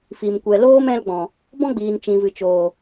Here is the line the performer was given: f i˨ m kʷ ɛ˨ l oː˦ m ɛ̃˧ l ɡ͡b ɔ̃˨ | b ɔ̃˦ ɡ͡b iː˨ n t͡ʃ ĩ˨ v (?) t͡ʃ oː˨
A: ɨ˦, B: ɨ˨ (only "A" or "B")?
B